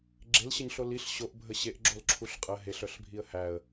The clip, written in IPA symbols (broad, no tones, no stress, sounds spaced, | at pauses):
ɡ͡ǁ e l ɕ ə ɲ ɬ o l i ɬ ɕ o ʔ bʱ ə ɕ e ʔ ɡ͡ǁ o l ǁʰ u ɬ qʼ ə ɦ e ɬ œ ɬ bʱ i ə̯ h æ ə̯